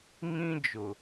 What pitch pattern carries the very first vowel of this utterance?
high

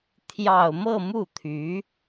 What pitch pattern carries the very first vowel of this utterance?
low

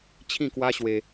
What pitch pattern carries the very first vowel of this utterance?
falling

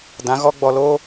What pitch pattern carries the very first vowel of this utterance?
rising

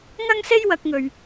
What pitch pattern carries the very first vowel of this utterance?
high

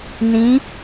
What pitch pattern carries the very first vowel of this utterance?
rising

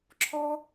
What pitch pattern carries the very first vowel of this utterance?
high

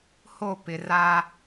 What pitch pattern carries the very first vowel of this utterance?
falling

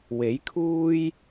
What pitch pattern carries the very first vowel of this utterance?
rising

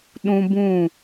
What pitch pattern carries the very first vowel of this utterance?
high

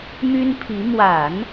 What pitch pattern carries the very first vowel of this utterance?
high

